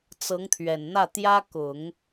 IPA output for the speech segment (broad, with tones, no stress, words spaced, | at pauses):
t͡sɤ˧˥ŋt̪ʰɥɛ˨˩nn̪ä˥˩t̪jä˥ kʊ˨˩˦ŋ